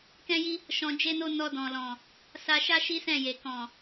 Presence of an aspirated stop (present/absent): absent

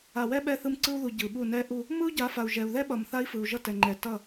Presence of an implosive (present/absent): present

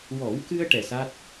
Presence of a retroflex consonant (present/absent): present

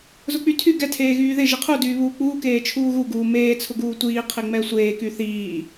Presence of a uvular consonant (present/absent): present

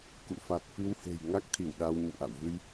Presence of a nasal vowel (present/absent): absent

